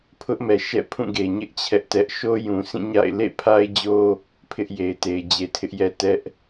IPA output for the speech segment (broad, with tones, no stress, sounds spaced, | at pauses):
pʰ ʊ˦ ʔ m ɛ˨ ʃ ɛ̰˦˨ pʰ ũ˦˨ ɡ e˨ ɲ ɪ˦ ʔ t͡ɕʰ ɛ˦ ʔ t ɛ˦ ʔ ʃ o˦ j ũ˨ sʰ ĩ˦˨ ɲ a̰˦˨ ɪ̯ l ḛ˦˨ pʰ a˦ ɪ̯ d͡ʑ o˦ | pʰ ɪ˦ ʔ j e˨ ɪ̯ t e˨ ɪ̯ d͡ʑ e˨ tʰ ɪ˦ ʔ j ɛ˦ t ɛ˦ ʔ